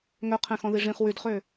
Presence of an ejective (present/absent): absent